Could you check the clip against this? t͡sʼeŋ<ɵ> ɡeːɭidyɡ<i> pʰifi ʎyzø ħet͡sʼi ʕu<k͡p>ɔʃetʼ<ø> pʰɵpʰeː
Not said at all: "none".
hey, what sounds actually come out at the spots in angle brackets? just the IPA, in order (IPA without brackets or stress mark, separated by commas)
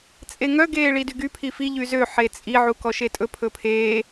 œ, y, k, ɵ